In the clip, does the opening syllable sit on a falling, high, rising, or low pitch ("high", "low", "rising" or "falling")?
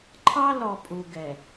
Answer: high